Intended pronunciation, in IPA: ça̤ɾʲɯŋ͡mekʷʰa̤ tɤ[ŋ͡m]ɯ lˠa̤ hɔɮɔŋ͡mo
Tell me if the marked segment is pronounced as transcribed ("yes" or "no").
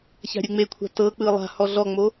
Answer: no